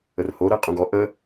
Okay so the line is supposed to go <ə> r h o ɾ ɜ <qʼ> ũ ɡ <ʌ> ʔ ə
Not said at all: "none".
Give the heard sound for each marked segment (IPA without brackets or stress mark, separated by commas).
ə, qʼ, ɔ